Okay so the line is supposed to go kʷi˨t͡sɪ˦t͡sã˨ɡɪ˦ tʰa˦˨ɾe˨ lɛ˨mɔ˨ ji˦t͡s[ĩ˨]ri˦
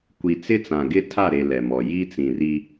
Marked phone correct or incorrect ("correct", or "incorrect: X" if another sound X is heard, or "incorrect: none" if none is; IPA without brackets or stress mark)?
correct